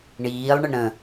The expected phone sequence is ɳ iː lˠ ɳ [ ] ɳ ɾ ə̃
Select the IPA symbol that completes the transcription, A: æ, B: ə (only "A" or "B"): B